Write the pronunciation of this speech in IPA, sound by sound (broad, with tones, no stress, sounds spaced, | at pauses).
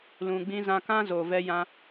l ũ˨ ɡ͡b ĩ˧ z ã˧ k ã˦ z o˨ v ɛ˧ j ã˧